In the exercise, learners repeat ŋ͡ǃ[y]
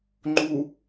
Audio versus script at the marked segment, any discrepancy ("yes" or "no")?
yes